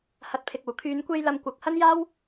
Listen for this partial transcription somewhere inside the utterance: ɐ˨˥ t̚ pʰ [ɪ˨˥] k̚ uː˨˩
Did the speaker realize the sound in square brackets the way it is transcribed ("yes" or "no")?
no